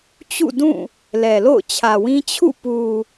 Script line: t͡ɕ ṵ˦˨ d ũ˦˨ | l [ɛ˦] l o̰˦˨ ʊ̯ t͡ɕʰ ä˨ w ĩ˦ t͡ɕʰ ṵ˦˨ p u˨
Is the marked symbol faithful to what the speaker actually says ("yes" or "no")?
no